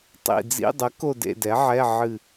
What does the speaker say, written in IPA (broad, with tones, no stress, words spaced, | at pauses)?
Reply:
tˤḭ˧˩d͡zḭ˧˥˧dˤə˩˥ ko˥˧dḛ˥˧dɛ˩˥ʕɛ˧˥˧ ʕɨ˧˩